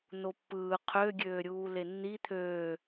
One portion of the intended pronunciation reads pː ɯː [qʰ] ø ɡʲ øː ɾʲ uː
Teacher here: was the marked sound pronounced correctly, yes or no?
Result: yes